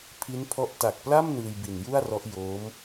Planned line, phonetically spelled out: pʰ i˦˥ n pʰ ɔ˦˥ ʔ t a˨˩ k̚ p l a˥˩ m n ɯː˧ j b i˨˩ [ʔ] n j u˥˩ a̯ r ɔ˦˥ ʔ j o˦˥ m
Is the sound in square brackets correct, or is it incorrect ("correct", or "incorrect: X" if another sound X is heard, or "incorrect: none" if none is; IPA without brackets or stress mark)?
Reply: incorrect: none